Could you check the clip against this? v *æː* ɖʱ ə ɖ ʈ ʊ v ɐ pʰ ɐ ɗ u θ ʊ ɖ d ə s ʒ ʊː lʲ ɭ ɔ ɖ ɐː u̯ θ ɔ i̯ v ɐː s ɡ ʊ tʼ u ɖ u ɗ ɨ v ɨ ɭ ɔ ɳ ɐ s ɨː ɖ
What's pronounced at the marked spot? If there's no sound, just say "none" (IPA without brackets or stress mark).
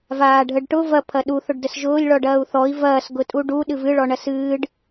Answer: aː